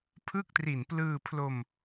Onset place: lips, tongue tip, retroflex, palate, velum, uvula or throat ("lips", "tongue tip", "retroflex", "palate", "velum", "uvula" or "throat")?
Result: lips